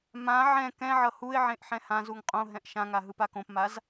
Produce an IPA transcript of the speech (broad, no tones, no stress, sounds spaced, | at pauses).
m ã ʕ ɛ̃ k ɛ̃ ʕ ʌ h u ɪ̯ ʕ ẽ ʔ ħ ɛ̃ h ã z u ŋ qʼ õ ɦ ɛ̃ ʔ ʃ ã ŋ a ɦ ɯ p a k õ p m a z